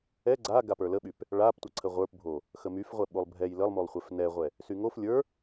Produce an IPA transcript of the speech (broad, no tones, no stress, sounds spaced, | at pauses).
ɛ ɡ͡ǀ a ɡ a p ə˞ l ə ɓ y p | ɭ a p tʷ ə ǀʰ ə ʁʷ ə˞ p bʱ o | x ə m y f ʁʷ ɛ ɓ o lˠ bʱ ɛ j l ə lˠ m o lˠ χʷ ɛ f n ɛ ʁʷ ɛ | s y ŋ o f lʲ ə˞